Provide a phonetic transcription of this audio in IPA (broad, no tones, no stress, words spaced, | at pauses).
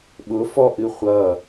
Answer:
ɓʊ fɔ ʔɨχʷʌ